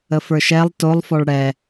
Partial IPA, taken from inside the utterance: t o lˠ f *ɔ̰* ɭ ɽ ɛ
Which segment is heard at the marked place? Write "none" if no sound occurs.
ɔ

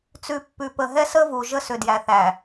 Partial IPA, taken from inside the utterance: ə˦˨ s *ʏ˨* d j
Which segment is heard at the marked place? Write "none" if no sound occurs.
ʏ˨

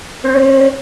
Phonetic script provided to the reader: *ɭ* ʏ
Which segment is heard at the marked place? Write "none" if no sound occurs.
ɭ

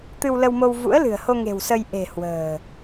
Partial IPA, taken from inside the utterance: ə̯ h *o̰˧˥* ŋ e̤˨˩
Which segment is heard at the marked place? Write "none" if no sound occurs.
o˧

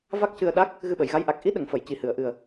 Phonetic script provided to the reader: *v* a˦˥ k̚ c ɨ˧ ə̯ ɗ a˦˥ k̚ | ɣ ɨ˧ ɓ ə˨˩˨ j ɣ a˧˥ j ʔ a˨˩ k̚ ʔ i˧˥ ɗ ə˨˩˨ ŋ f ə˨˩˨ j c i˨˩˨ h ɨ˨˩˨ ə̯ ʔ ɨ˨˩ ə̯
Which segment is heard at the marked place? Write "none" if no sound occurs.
v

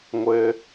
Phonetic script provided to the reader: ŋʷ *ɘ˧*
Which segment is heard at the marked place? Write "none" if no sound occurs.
ɘ˧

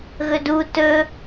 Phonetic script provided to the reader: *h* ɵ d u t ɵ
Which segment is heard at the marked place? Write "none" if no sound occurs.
ɣ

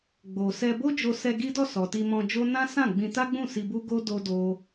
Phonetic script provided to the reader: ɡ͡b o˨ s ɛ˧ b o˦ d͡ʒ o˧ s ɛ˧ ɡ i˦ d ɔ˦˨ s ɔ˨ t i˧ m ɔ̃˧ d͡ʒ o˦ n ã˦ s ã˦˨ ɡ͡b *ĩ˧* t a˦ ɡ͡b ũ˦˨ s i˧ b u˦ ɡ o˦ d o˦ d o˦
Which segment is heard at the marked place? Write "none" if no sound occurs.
ĩ˧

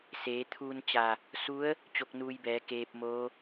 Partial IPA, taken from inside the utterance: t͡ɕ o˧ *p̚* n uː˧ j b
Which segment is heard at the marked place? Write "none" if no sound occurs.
k̚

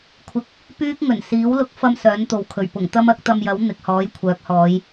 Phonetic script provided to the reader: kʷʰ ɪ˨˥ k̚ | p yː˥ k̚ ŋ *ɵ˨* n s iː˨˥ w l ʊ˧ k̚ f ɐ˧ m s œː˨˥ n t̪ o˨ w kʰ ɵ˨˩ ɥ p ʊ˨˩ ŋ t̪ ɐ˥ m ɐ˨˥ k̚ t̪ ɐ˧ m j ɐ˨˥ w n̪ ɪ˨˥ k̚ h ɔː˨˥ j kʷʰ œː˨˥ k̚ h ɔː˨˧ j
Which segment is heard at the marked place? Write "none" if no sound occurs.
ɵ˨˩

